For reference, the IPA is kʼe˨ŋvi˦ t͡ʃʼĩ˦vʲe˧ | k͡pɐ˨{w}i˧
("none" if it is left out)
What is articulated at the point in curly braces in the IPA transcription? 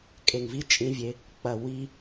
w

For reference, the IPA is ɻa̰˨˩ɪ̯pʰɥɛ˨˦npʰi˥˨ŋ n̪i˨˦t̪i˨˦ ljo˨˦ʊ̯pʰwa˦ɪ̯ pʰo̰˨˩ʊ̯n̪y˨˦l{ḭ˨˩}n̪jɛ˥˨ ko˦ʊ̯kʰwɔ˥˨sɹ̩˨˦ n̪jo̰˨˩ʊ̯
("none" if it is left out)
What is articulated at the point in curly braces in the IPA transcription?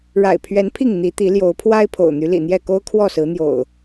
ḭ˨˩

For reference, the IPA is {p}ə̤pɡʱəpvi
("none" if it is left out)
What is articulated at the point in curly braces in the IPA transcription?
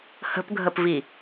h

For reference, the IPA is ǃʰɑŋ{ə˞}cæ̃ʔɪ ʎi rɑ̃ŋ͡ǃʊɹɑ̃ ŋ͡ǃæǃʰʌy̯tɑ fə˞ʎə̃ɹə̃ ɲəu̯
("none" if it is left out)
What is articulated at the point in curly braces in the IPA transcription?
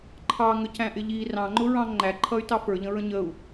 ə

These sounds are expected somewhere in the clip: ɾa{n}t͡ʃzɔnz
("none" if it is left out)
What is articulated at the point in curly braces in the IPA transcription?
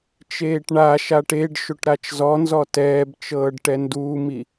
none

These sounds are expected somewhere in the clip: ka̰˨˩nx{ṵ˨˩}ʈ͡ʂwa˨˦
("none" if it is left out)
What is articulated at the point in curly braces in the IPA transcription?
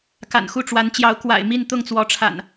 u˥˨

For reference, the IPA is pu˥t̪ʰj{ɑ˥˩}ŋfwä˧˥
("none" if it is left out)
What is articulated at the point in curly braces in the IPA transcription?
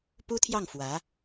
ɑ˥˩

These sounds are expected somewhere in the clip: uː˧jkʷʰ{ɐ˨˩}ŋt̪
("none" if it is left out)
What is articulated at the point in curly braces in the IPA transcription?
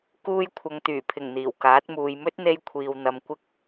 ɐ˨˧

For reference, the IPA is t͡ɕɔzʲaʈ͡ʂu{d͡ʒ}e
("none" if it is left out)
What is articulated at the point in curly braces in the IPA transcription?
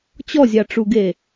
ɡ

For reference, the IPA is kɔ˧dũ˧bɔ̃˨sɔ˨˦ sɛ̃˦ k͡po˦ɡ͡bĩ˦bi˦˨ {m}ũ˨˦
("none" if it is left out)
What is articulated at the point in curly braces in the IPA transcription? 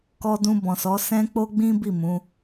m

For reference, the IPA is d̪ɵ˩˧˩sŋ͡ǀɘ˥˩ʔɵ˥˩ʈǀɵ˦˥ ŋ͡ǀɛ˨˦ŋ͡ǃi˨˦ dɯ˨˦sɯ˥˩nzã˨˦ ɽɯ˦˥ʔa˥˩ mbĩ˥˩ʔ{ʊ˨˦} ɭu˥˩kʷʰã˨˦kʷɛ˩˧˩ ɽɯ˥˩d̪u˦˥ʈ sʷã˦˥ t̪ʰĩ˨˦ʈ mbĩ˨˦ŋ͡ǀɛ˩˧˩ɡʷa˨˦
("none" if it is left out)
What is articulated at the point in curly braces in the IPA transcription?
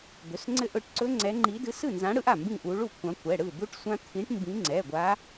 u˨˦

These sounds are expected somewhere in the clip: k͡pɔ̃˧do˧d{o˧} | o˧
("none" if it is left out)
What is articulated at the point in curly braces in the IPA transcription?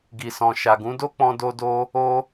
o˧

